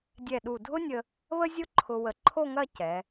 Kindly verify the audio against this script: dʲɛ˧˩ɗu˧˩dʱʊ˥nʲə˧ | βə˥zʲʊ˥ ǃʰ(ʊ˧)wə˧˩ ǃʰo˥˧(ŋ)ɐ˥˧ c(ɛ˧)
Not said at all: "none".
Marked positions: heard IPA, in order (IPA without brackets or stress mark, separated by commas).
ʊ˧, ŋ, ɛ˩˧